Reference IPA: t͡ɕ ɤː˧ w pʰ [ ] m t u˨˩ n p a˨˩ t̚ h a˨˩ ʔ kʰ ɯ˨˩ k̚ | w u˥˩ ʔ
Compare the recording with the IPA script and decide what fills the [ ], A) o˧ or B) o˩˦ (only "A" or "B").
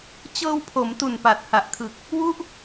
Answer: B